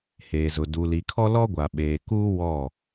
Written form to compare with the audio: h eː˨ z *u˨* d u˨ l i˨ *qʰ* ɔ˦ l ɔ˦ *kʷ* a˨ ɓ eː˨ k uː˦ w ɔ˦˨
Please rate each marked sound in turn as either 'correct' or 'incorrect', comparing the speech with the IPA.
incorrect: ʊ˨, incorrect: kʰ, incorrect: ɡʷ

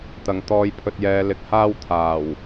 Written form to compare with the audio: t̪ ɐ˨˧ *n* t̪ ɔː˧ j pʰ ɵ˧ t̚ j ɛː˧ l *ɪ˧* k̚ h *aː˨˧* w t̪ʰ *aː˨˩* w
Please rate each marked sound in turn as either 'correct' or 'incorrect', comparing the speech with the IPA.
incorrect: ŋ, correct, incorrect: aː˥, correct

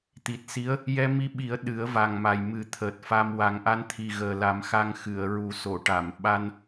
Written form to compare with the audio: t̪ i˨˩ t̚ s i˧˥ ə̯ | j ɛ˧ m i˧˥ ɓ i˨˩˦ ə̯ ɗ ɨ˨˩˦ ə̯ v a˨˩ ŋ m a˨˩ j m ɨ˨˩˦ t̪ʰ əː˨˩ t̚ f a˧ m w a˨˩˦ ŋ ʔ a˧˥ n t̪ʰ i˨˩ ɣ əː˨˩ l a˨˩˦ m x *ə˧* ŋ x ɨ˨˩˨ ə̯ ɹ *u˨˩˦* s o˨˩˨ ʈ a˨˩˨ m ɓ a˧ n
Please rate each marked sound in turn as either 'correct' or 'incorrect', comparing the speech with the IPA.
incorrect: a˧, correct

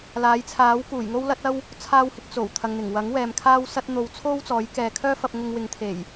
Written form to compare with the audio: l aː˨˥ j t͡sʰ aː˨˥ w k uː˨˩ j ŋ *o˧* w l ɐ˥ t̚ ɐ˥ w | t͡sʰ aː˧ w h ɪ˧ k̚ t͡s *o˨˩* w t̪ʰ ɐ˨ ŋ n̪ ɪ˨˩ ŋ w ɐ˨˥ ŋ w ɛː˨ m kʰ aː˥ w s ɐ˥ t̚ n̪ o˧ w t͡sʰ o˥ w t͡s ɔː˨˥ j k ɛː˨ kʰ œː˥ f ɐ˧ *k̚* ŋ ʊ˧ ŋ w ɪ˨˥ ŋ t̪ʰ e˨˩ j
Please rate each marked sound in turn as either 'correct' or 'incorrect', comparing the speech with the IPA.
incorrect: o˥, correct, incorrect: p̚

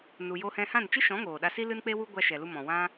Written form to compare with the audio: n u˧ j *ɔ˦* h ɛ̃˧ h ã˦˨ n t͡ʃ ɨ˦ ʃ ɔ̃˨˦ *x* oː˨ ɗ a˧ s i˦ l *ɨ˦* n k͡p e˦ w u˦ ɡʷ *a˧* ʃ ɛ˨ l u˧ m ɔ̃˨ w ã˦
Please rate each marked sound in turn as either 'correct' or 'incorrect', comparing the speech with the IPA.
incorrect: o˦, incorrect: ŋ, correct, correct

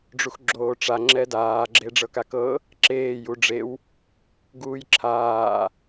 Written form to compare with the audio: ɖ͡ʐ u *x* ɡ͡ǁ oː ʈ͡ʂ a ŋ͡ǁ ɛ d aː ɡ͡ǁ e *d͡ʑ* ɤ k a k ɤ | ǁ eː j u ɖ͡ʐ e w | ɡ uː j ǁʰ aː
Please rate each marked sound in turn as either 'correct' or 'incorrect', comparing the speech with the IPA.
correct, incorrect: ɖ͡ʐ

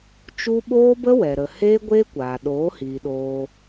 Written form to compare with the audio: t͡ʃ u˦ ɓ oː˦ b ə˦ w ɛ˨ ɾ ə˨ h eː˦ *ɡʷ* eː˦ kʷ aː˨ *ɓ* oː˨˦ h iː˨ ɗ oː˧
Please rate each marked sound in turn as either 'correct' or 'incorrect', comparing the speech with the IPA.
correct, incorrect: ɗ

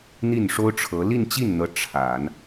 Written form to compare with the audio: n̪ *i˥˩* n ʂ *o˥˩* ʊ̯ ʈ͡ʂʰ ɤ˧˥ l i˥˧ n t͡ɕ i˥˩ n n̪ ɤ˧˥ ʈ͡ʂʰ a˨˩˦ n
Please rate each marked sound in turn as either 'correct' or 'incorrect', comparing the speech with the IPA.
correct, incorrect: o˥

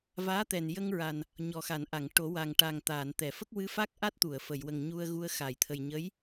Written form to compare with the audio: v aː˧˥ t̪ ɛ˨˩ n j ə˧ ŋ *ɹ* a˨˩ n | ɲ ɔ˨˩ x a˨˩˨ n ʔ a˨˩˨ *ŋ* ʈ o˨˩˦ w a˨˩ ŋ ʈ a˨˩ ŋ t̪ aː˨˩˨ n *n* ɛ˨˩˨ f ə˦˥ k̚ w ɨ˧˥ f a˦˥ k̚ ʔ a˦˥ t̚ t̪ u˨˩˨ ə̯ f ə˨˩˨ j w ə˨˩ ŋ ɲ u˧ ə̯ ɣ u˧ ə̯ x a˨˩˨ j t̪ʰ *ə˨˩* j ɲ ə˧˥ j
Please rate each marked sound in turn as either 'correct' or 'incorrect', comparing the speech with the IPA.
correct, correct, incorrect: t̪, correct

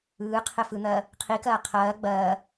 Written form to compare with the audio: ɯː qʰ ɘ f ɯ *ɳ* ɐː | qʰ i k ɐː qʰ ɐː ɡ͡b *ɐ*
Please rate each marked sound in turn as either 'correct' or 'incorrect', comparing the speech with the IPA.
incorrect: n̪, incorrect: ɐː

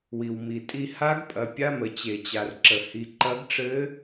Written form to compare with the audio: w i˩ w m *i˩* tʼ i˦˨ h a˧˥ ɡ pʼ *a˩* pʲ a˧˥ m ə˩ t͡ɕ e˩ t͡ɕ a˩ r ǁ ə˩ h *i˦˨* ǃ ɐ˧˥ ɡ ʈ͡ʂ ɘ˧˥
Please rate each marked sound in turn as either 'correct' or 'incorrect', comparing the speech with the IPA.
correct, incorrect: ɐ˩, incorrect: i˩

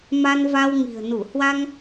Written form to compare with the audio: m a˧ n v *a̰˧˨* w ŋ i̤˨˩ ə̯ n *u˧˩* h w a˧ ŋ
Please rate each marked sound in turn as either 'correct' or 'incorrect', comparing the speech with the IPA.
incorrect: a˧, correct

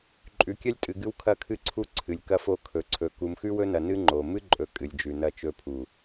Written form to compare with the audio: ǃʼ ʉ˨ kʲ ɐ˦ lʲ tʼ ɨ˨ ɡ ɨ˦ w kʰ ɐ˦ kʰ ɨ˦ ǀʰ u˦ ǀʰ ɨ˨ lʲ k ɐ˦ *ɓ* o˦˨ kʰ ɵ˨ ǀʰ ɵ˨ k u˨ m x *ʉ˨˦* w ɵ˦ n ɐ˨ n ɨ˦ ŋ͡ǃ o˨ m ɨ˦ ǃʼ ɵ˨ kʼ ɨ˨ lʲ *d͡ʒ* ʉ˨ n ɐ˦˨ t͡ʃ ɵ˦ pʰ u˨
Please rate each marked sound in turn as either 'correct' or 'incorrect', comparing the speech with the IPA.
incorrect: f, incorrect: ʉ˦, correct

